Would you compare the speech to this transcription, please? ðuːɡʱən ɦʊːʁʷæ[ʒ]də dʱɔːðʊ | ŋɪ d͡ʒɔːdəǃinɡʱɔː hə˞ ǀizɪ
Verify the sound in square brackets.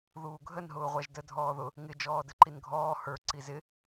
correct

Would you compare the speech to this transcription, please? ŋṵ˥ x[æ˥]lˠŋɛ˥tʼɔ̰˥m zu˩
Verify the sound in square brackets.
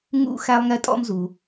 correct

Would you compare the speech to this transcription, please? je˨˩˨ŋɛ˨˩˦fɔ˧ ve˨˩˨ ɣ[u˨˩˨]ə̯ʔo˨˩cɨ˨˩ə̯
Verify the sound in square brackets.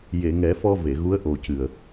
incorrect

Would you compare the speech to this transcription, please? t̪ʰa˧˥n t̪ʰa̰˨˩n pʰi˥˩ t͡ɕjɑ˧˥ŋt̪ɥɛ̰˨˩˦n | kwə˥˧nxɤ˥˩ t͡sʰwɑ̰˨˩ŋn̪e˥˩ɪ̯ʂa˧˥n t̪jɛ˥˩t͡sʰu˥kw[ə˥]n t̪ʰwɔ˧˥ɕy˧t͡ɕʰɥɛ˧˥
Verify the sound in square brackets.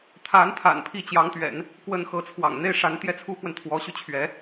incorrect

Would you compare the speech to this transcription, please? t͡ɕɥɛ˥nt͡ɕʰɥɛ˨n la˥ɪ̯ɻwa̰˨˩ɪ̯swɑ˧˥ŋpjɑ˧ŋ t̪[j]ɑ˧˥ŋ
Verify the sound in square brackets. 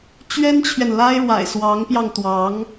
incorrect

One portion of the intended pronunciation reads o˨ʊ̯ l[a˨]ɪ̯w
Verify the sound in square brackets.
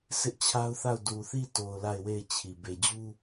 incorrect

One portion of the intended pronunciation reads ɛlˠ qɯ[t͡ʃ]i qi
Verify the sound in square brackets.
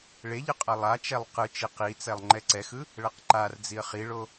correct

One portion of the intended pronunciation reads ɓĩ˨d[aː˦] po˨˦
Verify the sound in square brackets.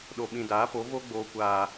incorrect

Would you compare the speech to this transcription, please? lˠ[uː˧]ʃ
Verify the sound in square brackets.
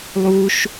correct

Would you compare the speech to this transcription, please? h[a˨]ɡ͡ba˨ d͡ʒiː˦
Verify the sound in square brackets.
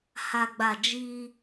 correct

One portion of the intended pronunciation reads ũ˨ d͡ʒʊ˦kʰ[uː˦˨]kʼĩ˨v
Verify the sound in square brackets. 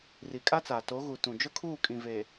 correct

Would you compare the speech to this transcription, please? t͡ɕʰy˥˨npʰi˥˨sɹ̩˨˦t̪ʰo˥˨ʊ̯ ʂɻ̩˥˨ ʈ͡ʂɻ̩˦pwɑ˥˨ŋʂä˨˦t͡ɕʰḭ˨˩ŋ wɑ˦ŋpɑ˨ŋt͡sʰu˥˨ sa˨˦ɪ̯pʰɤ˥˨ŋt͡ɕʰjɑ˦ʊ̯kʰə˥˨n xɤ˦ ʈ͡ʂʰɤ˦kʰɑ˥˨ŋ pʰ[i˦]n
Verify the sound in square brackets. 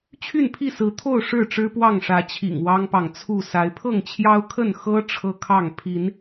incorrect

